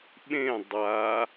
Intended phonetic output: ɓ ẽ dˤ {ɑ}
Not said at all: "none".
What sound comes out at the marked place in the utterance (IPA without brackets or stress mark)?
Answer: a